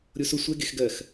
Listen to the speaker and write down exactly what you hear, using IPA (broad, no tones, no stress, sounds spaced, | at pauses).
ɾʲ o s ʊ sʷ ɛ ɡ e x ɡ ɜ x